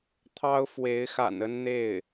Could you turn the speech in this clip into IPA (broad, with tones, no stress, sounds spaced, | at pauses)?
t̪ʰ ɑ˥ ʊ̯ f w e˧˥ ɪ̯ x a̰˨˩ n ə˥ n n̪ e˥˩ ɪ̯